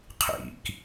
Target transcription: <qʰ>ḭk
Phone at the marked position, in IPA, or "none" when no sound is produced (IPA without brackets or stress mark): qʰ